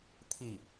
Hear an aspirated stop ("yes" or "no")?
yes